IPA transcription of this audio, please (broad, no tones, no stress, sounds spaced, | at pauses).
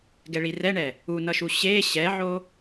ɡ ɛ ɭ i r ɛ ɳ ɛ | u n ʌ ʃ u ɕ e ɕ ɛ ʕ o